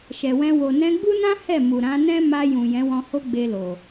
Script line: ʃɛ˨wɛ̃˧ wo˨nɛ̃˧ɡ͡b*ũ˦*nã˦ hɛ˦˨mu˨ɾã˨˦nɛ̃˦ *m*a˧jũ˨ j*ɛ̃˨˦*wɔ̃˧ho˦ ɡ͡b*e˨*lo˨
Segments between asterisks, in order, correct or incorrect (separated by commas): incorrect, correct, correct, incorrect